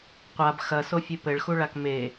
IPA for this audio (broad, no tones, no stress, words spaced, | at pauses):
qʷab xɐ sofʲɨpɘɭxu ɭakme